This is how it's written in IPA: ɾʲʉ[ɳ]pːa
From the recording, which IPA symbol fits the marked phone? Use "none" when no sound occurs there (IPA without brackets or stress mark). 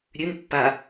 n